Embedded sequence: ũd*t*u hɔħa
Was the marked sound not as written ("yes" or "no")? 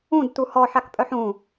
no